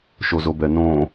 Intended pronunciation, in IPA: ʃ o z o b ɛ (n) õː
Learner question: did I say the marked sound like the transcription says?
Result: yes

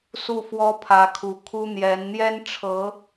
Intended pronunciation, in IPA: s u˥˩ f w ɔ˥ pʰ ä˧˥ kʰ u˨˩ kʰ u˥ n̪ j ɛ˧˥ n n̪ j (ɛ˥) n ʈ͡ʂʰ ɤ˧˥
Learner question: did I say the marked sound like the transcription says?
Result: yes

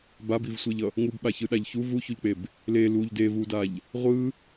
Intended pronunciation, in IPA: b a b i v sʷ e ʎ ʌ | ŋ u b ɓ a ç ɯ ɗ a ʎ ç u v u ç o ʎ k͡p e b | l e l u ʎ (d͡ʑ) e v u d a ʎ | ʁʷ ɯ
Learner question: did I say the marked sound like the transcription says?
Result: no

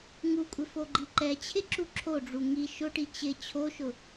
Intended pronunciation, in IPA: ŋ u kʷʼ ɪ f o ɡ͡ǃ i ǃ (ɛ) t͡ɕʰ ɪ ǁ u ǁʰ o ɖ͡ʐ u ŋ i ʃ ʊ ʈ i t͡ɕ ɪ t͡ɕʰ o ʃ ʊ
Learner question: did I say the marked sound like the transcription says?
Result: yes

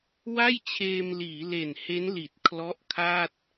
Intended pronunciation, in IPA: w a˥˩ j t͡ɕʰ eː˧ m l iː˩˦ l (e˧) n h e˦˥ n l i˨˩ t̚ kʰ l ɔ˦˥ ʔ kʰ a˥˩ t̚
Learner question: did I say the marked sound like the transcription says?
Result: no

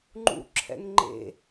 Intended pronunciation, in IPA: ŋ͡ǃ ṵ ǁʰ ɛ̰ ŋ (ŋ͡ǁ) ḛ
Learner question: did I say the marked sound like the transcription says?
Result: no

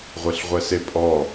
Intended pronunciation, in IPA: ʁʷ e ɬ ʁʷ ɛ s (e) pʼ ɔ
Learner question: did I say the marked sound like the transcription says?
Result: yes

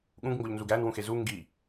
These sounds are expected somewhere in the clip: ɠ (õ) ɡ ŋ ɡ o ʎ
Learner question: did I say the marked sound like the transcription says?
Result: no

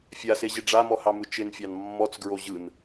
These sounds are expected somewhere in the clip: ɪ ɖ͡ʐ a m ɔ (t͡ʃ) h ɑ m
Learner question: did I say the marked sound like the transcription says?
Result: no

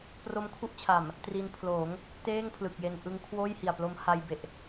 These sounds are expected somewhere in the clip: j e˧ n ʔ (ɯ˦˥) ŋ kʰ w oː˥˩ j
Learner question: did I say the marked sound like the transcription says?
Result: yes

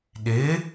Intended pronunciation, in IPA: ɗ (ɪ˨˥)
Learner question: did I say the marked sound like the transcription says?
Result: yes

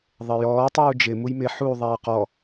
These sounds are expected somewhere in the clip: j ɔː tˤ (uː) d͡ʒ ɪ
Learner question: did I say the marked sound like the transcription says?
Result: yes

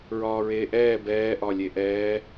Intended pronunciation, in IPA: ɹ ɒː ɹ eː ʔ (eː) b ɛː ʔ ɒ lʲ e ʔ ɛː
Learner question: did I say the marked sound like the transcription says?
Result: no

